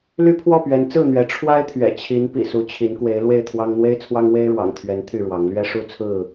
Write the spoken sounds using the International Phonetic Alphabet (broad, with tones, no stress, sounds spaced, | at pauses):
l y˦ pʰ w ɔ˥˨ p ɥ ɛ˨˦ n t͡s ɹ̩˥˨ n̪ ɥ ɛ˨˦ ʈ͡ʂʰ w a˦ ɪ̯ t̪ʰ ɥ ɛ̰˨˩ t͡ɕʰ i˨˦ n p ḭ˨˩ s u˨˦ t͡ɕʰ i˨˦ n k w e˨˦ ɪ̯ l w e˥˨ ɪ̯ t̪ʰ w ɑ˦ ŋ n̪ w e˦ ɪ̯ t͡sʰ w ɑ˦ ŋ w e˦ ɪ̯ ɻ w ɑ̰˨˩ ŋ t̪ʰ ɥ ɛ˨˦ n t̪ʰ y˥˨ ɻ w ɑ˨˦ ŋ l ɥ ɛ˦ ʂ u˥˨ t͡sʰ ɹ̩˥˨